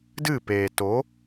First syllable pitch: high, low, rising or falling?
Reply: falling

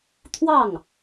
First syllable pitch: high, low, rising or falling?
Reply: falling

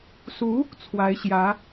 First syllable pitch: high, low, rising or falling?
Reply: rising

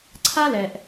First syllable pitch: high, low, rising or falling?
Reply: high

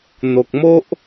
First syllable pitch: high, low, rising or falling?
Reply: low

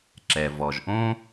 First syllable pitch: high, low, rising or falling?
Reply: low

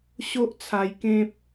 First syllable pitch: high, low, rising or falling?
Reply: high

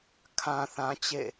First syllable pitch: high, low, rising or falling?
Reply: low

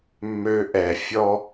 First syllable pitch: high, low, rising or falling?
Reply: high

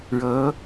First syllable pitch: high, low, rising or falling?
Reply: rising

